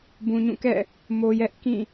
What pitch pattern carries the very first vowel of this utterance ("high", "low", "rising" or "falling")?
low